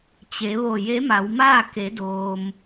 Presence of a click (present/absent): absent